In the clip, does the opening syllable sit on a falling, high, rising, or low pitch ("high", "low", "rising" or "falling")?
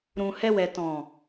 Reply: low